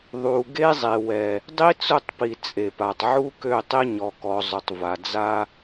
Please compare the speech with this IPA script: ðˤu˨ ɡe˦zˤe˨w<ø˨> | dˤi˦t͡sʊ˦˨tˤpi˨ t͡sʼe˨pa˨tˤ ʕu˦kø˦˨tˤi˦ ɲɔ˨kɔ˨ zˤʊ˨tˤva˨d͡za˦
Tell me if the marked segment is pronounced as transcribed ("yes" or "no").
no